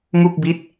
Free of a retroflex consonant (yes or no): yes